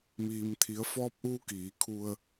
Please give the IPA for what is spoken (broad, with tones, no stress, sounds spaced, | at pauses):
m iː˩ m t̪ʰ i˩˧ ə̯ f ɔː˧ p̚ ʔ uː˧ k iː˩˧ kʰ u˧ ə̯